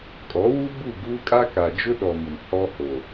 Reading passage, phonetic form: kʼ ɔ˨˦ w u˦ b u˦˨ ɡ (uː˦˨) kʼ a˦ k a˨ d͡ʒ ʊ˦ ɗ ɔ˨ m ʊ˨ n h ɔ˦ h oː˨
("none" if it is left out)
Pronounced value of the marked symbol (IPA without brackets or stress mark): uː˦